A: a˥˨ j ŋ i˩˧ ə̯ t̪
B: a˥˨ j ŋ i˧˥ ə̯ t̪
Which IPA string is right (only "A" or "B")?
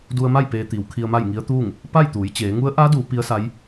B